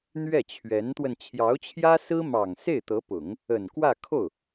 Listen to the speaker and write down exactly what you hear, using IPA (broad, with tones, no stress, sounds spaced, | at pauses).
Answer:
n̪ ɥ ɛ˥˩ t͡ɕʰ ɥ ɛ˧˥ n t̪ w ə˧ n t͡ɕʰ j ɑ˧˥ ʊ̯ t͡ɕʰ j ä˥ s ɹ̩˥ m ɑ˨˩ ŋ s e˥˩ ɪ̯ t̪ ɤ˧˥ p ʊ˨˩˦ ŋ | ə˨˩ n k w ä˥˧ kʰ o˥˩ ʊ̯